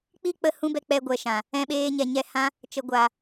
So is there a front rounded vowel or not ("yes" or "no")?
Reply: no